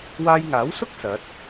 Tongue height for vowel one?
low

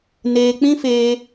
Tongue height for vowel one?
mid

